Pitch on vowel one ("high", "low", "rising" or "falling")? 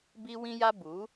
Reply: high